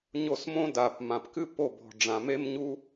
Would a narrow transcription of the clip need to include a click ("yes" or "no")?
no